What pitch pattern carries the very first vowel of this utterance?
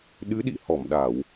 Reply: rising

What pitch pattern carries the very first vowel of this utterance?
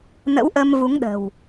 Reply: rising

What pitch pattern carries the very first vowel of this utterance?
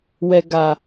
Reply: low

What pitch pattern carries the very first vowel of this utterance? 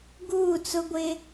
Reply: falling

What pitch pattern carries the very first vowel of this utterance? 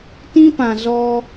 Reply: high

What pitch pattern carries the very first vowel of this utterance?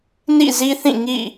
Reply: falling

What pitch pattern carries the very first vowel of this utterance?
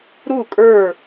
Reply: falling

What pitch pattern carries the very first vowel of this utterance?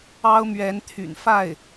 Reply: high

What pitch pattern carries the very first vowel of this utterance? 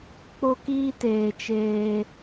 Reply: high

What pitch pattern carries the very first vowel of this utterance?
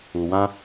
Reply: low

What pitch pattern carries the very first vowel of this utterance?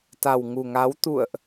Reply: low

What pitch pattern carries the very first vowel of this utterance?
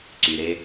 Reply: low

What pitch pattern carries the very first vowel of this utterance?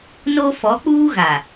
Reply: high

